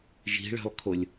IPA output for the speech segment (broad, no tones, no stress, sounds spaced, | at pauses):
ʒ i̤ ɭ e̤ lˠ kʰ o lʲ